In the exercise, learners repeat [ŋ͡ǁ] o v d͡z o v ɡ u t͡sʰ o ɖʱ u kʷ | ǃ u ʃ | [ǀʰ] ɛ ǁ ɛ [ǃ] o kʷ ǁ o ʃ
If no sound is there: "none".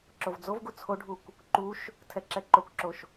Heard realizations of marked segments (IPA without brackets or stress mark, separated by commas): ǁ, tʰ, ǃ